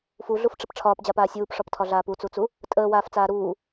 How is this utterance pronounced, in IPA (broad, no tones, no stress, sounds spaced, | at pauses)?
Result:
f u ɮ u f ʈ͡ʂ ə p ʈ͡ʂʰ ɒː p d͡ʑ a p aː sʲ uː p ʂ ɒ p tʰ ɒ ɮ aː p u t͡s u t͡s u | tʼ əː w aː f t͡s aː ɾ uː